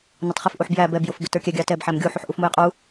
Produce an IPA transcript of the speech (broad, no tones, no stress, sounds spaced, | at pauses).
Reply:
n ʊ tˤ χ ɪ f ʔ u ħ b j æ b ɛ b j ʊ f b ɪ t ə˞ kʲ ɛ ɡʲ ɑ t ɛ b ħ æ m ɡʲ u ħ u ħ ʔ u f m u j qʼ u